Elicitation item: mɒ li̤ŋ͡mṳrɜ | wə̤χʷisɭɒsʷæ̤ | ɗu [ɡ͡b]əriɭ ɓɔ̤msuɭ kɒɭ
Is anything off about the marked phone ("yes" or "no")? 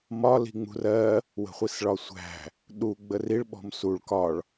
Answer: no